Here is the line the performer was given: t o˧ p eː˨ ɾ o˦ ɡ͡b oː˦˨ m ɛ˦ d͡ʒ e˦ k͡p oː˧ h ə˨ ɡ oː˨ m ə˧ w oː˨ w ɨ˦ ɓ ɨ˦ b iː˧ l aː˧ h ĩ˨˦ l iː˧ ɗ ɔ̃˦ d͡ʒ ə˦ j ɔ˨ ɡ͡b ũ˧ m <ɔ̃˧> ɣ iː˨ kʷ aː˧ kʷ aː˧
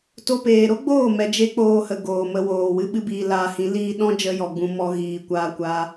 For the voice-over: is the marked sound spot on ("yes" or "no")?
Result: no